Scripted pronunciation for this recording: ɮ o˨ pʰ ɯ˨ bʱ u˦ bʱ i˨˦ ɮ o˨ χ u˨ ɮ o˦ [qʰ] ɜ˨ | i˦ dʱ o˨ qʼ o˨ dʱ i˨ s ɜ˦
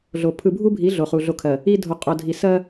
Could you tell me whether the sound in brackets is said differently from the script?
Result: yes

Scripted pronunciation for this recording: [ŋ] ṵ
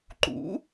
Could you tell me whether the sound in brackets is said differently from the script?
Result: yes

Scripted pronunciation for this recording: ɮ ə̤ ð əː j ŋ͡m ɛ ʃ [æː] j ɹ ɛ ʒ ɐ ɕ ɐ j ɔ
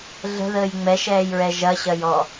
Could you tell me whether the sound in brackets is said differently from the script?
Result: yes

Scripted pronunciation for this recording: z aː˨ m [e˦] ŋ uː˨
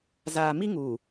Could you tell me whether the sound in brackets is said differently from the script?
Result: yes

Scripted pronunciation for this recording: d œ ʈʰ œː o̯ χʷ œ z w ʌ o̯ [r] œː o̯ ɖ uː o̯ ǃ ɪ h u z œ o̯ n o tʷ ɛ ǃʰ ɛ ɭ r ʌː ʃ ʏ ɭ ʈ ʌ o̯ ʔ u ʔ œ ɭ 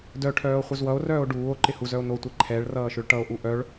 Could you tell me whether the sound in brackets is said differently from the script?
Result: no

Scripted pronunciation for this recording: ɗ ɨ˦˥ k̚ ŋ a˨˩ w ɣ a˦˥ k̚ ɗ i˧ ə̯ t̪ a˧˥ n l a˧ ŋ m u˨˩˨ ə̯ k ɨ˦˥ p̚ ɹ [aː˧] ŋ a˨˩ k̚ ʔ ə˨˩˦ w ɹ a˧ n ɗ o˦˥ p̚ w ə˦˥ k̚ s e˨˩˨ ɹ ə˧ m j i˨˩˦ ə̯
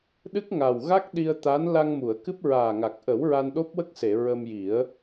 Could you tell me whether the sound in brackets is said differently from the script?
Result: yes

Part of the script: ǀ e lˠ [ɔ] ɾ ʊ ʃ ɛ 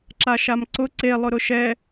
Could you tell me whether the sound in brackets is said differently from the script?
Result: yes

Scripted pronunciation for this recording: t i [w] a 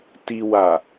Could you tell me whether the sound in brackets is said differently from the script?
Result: no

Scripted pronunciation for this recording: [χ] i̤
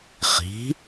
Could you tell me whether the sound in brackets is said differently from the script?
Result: no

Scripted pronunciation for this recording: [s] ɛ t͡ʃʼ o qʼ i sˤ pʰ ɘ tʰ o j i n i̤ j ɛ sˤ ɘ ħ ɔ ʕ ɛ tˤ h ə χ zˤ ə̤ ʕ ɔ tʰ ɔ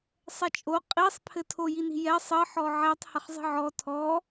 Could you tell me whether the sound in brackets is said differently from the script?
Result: yes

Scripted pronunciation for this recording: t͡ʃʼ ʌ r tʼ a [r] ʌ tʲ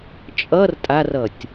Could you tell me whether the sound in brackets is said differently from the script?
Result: no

